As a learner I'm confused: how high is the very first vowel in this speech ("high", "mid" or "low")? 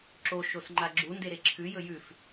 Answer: mid